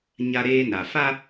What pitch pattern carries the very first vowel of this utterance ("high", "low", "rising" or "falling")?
high